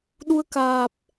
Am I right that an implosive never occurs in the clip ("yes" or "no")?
no